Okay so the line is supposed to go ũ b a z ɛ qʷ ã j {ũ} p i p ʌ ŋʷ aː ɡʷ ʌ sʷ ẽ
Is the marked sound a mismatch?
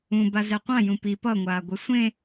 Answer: no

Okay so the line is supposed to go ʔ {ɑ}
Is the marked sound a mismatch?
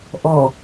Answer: yes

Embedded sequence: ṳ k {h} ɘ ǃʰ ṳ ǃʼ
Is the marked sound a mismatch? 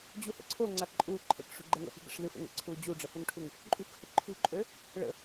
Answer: no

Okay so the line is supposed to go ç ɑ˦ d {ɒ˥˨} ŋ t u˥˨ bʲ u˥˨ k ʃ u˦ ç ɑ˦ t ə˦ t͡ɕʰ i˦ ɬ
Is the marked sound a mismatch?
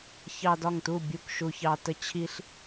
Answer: no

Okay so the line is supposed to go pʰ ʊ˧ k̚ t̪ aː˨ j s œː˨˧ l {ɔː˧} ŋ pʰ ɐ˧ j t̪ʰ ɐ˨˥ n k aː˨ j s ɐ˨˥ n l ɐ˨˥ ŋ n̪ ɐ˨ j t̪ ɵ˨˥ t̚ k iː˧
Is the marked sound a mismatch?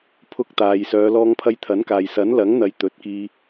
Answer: no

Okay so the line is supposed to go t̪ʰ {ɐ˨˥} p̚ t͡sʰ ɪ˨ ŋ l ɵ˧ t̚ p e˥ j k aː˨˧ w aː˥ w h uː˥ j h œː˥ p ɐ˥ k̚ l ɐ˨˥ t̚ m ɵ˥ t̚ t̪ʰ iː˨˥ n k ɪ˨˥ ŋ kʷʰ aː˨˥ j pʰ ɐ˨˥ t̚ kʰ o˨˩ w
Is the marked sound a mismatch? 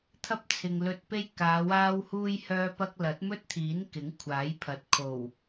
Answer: yes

